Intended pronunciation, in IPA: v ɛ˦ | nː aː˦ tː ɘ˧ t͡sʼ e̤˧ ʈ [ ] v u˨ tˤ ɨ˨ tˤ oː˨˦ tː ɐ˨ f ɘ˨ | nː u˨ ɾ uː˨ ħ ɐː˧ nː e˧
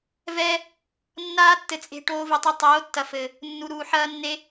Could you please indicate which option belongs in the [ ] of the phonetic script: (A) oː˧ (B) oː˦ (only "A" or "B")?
A